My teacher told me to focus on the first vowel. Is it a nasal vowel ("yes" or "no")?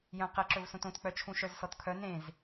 yes